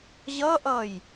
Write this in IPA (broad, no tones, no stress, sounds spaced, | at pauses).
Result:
ʑ ʌ ʔ ʌ j